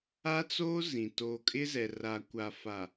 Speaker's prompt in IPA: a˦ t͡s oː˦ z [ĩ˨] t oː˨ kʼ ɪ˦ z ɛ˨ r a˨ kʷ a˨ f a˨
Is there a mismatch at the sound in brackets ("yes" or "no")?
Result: no